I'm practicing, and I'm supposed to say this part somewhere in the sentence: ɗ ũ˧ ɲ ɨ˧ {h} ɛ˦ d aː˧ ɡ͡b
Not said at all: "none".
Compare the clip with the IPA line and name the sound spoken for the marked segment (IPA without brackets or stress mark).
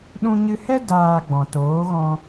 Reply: h